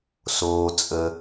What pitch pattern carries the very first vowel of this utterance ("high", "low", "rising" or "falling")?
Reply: low